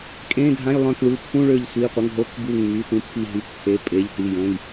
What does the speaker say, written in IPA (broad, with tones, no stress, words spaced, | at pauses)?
kʼẽ˧˥˧dʱã˧˥˧jlˠœ̃˧˩kɭu˩˧˩ pʰũ˧˥˧ɭø˧˩ʎsʷi˩˧˩qʷə˩˧˩ŋ ɦo˧˥˧k bu˧˩ŋmy˩˧˩tũ˧˩ pʰi˧˩ɦy˩˧˩kpʰe˩˧˩ pʼe˩˧˩ʎti˩˧˩jə̃˩˧˩j